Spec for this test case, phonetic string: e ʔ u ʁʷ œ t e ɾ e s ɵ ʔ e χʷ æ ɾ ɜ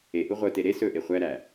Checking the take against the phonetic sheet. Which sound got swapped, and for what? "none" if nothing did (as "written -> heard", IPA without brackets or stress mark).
ɜ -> æ